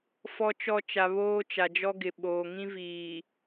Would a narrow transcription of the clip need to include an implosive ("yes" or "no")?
yes